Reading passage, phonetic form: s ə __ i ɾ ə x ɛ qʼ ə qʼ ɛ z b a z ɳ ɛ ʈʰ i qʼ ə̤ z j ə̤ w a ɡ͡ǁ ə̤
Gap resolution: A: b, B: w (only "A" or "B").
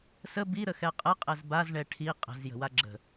A